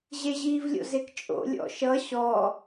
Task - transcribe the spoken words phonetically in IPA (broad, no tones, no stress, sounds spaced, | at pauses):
ʑ e ʑ iː v lʲ o̰ z e k t͡ʃʼ o̰ lʲ ɔ̰ ʃ ʌ ɕ ɔ